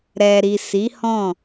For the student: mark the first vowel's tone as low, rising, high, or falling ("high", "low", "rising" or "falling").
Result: low